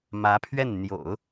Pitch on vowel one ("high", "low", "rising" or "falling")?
rising